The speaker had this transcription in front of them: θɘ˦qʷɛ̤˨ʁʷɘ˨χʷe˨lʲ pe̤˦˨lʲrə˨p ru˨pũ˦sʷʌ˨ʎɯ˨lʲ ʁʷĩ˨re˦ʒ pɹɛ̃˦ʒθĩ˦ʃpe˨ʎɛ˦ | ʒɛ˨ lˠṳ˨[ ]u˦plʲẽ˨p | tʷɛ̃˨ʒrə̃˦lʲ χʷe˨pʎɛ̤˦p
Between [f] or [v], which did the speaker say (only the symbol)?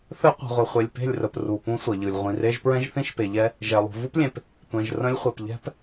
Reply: v